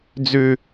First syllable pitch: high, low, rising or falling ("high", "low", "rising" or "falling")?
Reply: high